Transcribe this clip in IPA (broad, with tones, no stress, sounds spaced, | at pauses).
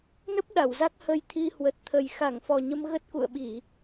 n ə˦˥ p̚ ɗ a˧˩ w z a˦˥ k̚ h ə˧ j t̪ʰ i˧ h w ə˨˩ t̚ t̪ʰ ə˨˩ j x a˧˩ ŋ f ɔ˨˩ ɲ ə˧ m ɣ ə˦˥ t̚ k ṵ˧˨ ə̯ ɓ i˧˩˨